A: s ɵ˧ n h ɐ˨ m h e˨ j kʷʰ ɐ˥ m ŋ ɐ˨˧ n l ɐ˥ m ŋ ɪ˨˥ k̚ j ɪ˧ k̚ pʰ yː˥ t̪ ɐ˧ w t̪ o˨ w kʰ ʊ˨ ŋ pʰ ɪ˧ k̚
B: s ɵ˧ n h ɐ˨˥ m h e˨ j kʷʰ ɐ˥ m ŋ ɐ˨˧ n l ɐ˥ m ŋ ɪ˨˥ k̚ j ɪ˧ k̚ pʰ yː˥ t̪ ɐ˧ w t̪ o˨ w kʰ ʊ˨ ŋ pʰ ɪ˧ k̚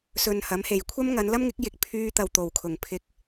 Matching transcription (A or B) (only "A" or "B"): B